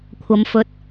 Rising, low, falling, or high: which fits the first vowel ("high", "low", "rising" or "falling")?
low